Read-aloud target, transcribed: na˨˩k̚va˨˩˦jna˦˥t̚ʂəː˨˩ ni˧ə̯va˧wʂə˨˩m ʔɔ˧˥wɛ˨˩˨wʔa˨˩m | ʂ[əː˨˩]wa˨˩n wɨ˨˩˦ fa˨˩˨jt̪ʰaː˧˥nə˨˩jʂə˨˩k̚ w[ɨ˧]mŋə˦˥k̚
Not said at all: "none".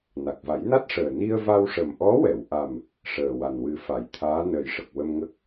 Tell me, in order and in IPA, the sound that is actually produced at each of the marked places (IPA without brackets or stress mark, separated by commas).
əː˨˩, ə˧